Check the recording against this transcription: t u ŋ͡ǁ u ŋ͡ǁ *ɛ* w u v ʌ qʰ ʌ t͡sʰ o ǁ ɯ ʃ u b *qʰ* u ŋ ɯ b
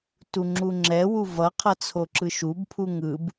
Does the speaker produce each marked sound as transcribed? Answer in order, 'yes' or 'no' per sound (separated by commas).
yes, no